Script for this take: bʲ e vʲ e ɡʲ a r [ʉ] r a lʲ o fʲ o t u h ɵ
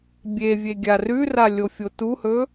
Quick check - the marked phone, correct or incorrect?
correct